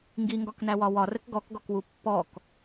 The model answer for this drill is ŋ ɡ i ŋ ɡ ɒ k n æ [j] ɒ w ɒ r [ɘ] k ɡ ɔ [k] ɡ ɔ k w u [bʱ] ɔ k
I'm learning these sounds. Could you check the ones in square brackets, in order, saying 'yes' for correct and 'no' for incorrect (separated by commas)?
no, yes, yes, no